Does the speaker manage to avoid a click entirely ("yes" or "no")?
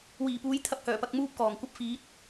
yes